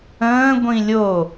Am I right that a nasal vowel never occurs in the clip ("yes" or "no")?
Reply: no